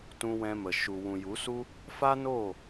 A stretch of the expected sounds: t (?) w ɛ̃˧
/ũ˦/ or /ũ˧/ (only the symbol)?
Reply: ũ˧